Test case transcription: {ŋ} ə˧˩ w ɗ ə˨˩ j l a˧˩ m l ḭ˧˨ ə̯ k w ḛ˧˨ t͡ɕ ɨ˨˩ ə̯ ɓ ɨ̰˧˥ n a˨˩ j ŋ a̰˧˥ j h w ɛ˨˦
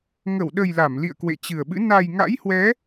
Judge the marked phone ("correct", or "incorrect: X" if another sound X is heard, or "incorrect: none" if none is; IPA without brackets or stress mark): correct